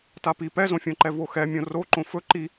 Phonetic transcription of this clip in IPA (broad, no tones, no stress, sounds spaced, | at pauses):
t a p i p ɛ z õ fʲ õ ǃ ɛ v o x ɛ mʲ õ r o ǃ õ f ɵ ǃ i